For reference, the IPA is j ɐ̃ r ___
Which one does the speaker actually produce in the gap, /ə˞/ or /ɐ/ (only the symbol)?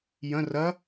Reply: ɐ